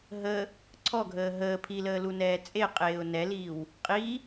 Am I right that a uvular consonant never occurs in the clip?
no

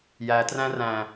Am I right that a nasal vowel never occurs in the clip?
no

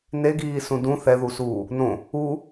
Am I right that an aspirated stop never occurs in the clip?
yes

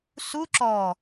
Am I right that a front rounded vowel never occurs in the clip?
yes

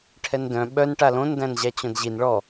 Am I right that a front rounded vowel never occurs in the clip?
no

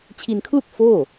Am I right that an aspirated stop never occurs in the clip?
no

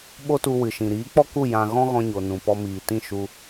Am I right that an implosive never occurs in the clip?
no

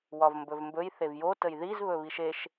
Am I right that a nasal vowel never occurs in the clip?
yes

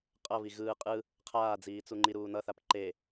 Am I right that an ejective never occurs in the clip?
no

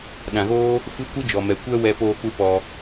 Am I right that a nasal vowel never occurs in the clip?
no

